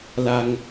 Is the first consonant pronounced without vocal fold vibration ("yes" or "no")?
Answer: no